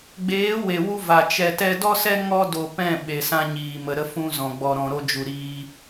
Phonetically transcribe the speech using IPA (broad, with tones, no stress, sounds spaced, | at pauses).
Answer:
ɡ͡b eː˨˦ w e˨ w u˧ v a˨ t͡ʃ ɛ˧ t ɛ˦ d ɔ˦ s ɛ˦ ŋ ɔ˦ d o˧ p ɛ̃˦˨ ɓ e˨ s ã˧ ɲ iː˨ m ə˨ ɾ ə˧ f ũ˧ z ɔ̃˨ ɡ͡b ɔ˨ ɾ ɔ̃˨ ɾ o˧ d͡ʒ u˨ ɾ iː˧